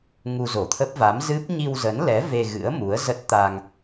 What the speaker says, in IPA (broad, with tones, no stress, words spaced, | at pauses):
ŋu˧zo˧˩t̪ʰə˦˥p̚ va˨˦mzɨ˦˥p̚ ɲi˧wzə˨˦nlɛ˨˦ ve˧ɣɨ̰˧˥ə̯ mu˨˦ə̯ zə˦˥t̚ t̪a˧ŋ